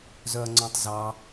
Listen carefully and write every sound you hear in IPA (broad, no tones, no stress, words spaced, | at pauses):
zœɐ̯ŋ͡ǀõtˤzɑ